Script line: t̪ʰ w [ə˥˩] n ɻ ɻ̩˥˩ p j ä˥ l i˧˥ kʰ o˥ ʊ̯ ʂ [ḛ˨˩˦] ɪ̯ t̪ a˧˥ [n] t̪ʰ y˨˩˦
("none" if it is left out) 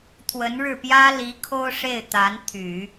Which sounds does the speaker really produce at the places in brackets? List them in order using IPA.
ə˧˥, e˥˩, n

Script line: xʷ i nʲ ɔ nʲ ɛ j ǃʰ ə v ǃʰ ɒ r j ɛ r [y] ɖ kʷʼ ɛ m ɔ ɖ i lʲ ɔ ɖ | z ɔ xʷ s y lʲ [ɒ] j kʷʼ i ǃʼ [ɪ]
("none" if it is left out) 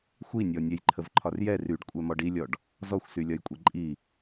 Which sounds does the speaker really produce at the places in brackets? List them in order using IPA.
y, ɒ, i

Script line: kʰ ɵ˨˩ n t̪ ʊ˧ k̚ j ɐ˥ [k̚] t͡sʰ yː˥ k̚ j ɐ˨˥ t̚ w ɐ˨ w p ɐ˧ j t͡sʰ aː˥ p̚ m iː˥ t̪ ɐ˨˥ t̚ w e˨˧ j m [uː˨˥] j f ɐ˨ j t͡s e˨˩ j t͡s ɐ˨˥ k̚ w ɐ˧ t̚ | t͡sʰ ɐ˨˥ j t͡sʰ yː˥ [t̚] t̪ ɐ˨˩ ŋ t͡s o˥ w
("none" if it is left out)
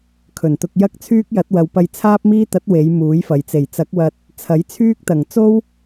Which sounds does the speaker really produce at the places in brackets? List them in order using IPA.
k̚, uː˨˥, k̚

